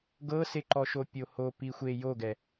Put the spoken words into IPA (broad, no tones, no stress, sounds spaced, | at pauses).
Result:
ɡ ɤ s e ǃ ɔ ʃ o pʲ o h o p i xʷ e j o ɡ ɛ